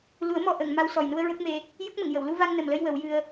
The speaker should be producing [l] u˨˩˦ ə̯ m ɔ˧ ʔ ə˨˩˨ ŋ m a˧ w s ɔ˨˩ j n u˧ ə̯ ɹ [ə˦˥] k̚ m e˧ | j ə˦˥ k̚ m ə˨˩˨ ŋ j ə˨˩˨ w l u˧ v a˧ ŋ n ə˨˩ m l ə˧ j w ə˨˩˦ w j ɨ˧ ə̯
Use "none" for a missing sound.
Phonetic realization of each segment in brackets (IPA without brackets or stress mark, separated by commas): l, ə˦˥